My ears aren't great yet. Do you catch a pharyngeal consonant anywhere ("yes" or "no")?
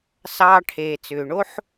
yes